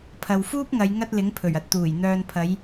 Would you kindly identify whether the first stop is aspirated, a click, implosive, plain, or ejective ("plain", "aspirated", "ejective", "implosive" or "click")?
aspirated